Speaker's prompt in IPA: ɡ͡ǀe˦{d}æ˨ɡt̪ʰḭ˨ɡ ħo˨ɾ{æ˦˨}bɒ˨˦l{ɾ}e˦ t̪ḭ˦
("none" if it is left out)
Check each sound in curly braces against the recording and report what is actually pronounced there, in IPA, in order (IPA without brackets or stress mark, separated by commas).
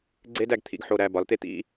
d, æ˦˨, t̪